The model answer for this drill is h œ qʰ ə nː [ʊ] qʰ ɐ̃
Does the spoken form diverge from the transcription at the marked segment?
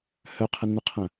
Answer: no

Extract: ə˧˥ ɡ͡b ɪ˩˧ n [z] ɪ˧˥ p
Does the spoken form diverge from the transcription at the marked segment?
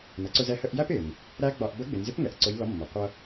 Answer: no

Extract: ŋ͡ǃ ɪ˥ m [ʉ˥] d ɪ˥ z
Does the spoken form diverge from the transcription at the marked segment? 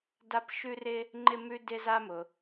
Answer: no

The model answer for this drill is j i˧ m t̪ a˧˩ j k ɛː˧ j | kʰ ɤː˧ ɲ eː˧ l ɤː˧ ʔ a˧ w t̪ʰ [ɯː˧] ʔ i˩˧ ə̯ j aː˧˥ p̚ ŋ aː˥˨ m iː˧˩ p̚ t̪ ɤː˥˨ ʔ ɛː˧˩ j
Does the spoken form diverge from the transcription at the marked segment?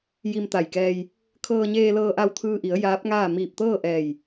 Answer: no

